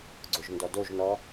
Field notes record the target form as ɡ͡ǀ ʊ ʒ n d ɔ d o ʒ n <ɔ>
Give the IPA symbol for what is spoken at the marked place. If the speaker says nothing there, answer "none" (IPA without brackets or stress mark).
ɔ